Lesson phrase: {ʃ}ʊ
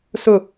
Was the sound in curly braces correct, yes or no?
no